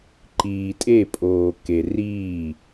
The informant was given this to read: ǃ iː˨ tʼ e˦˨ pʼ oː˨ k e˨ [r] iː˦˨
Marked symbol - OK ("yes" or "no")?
yes